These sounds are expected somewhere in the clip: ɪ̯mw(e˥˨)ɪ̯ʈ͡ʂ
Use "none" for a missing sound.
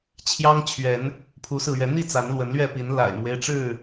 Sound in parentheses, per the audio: e˦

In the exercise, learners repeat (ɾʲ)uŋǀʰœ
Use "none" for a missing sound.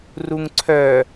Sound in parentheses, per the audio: r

